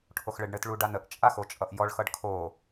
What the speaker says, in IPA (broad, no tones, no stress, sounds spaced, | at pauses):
ʈʰ o x ɭ ɘ ɖ ɳ ɘ t ɭ u ɖ a n ə ʔ t͡ʃʼ a x o t͡ʃʼ ʌ ʔ j ɔ ɭ x ʌ ɖ kʰ o